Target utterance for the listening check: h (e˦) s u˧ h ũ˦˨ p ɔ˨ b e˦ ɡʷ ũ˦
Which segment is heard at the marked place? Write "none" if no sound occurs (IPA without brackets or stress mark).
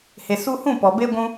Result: e˨